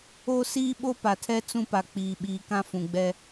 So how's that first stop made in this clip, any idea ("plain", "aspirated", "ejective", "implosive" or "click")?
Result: implosive